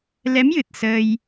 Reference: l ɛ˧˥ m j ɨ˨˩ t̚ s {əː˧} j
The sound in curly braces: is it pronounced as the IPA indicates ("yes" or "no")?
yes